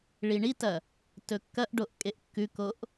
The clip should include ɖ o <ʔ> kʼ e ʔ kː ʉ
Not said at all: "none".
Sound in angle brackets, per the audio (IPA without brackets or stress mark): ʔ